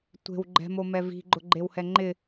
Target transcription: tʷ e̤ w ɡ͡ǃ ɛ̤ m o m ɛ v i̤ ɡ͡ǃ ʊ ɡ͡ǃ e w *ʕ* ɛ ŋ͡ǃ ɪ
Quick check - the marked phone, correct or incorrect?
incorrect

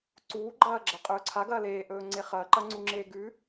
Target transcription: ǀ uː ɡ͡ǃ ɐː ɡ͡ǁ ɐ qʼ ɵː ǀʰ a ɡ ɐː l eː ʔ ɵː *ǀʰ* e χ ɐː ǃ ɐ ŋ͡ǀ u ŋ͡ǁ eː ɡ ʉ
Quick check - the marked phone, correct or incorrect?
incorrect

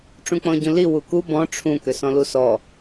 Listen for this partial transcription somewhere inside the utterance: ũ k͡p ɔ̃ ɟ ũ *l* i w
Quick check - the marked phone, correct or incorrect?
correct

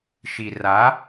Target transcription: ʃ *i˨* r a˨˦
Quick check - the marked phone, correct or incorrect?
correct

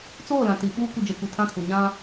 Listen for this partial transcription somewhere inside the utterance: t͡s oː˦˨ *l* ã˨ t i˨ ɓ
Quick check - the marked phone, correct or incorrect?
correct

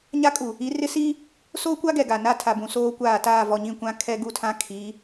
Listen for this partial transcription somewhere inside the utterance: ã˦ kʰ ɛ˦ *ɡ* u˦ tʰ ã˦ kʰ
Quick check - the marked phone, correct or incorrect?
correct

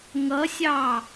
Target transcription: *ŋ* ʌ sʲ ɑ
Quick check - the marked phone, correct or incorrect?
correct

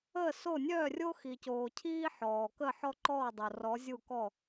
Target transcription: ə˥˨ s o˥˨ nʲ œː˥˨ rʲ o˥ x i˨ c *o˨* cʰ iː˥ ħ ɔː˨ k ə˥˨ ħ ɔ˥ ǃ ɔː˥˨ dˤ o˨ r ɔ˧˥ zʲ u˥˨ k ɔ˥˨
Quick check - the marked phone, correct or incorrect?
incorrect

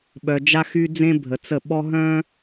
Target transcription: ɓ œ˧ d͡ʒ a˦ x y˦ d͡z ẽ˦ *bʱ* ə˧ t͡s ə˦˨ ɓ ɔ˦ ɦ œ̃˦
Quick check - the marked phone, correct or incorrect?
correct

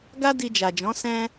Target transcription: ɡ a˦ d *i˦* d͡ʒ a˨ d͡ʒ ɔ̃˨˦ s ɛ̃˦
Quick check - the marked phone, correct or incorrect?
incorrect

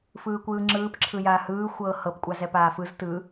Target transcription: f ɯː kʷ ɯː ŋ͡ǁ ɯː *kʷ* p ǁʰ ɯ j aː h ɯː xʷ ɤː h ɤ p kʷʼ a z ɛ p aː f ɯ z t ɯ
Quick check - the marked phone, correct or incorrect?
incorrect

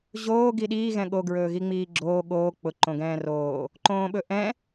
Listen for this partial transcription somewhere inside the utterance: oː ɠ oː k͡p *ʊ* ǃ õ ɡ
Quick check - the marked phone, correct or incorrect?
correct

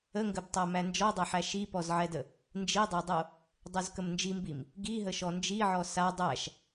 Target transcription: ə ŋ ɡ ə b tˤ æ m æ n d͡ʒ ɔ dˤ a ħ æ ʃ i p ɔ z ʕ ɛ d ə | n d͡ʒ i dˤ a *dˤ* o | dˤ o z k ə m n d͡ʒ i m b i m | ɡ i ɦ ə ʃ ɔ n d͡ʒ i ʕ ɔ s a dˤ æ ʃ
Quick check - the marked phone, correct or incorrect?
correct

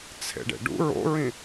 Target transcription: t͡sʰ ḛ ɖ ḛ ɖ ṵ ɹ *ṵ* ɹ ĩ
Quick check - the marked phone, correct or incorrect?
incorrect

